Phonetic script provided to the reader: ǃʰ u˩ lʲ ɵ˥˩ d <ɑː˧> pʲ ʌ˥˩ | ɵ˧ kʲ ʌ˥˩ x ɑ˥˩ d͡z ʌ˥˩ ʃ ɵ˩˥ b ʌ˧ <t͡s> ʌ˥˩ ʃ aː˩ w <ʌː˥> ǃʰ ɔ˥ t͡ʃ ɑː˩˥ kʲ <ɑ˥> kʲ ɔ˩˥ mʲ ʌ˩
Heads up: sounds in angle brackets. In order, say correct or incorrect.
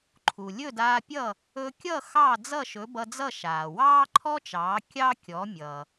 incorrect, incorrect, incorrect, correct

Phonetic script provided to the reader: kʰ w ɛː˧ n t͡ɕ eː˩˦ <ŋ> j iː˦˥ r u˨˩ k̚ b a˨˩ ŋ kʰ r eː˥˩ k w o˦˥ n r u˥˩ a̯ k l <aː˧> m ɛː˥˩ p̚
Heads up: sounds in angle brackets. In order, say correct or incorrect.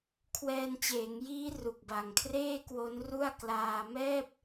correct, correct

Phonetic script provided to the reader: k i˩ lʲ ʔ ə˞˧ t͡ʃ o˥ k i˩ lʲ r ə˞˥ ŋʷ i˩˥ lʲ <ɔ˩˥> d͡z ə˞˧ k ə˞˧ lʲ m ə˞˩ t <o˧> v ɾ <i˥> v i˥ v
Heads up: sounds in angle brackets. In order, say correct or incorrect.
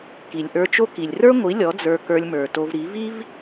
correct, correct, incorrect

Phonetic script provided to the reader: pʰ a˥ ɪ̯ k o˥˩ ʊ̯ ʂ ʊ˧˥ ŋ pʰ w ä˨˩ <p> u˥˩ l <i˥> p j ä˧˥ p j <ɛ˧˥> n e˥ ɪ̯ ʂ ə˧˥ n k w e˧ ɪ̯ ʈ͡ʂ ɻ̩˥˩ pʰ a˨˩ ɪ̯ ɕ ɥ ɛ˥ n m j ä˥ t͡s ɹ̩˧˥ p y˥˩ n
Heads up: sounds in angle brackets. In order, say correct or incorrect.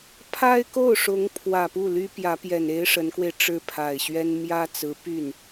correct, incorrect, incorrect

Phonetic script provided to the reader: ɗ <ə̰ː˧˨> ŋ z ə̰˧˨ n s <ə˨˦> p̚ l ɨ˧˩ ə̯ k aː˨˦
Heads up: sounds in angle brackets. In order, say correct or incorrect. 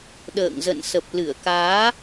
correct, incorrect

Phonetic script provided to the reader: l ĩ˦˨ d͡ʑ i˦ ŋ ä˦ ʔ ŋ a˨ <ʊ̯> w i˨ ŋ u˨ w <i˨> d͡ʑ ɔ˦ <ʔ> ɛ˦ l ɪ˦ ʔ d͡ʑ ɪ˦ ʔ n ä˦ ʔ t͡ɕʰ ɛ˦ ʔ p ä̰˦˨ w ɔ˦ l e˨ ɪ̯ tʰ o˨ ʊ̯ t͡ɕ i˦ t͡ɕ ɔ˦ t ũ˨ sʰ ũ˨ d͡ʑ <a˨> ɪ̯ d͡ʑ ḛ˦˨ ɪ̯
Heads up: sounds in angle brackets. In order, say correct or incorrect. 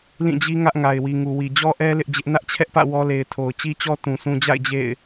incorrect, correct, correct, incorrect

